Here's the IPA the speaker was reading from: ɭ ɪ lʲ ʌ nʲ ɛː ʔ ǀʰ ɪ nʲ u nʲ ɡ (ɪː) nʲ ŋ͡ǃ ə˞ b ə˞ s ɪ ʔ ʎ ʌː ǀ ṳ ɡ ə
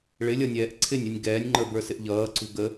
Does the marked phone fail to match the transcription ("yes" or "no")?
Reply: yes